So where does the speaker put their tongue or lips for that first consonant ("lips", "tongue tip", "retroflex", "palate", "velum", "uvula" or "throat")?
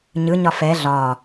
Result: palate